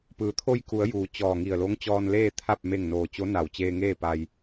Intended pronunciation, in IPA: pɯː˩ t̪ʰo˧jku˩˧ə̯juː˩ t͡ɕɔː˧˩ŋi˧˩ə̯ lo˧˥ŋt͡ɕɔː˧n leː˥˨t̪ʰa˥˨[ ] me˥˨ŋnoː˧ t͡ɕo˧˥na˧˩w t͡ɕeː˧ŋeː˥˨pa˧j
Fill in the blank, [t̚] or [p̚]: p̚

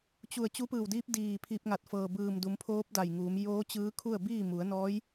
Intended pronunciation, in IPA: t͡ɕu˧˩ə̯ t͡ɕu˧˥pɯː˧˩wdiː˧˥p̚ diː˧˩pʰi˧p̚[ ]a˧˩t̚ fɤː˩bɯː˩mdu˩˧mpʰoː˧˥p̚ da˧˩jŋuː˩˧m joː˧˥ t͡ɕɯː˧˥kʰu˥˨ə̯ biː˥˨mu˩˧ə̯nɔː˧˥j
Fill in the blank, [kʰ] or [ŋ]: ŋ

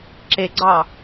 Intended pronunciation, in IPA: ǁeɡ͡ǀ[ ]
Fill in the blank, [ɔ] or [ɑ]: ɑ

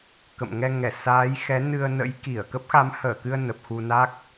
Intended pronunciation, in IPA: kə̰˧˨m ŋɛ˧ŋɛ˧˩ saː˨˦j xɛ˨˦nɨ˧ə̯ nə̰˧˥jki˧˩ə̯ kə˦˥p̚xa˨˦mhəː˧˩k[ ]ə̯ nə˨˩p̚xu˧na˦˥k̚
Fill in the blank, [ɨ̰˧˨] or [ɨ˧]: ɨ˧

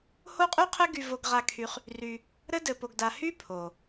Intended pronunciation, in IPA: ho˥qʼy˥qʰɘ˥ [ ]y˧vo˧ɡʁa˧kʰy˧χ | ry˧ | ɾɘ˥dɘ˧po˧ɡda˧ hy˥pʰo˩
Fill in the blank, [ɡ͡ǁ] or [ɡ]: ɡ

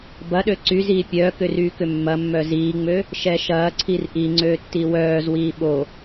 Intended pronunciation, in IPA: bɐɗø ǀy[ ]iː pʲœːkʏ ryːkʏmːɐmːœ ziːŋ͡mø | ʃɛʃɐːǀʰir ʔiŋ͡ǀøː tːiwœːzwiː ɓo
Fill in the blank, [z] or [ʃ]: z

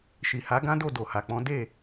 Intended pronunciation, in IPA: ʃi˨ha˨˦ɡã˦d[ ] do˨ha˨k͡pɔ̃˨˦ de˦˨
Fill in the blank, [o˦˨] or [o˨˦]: o˦˨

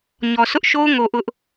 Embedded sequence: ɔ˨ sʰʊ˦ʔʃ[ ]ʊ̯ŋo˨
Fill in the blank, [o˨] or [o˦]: o˦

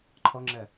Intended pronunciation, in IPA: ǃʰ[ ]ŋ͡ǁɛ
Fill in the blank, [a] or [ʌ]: ʌ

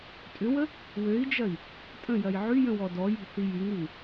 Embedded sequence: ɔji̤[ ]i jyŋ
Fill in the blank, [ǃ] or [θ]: θ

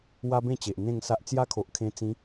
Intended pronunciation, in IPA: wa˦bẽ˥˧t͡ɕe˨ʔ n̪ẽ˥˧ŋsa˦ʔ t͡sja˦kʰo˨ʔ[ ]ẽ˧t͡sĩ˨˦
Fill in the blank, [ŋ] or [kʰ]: kʰ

